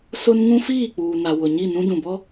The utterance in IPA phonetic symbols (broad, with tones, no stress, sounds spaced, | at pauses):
s ʊ˦ n ŋ ũ˦ f iː˦˨ k͡p uː˨ n a˨ w ʊ˨ ɲ i˦˨ n ũ˦ d ũ˨ b ɔ˦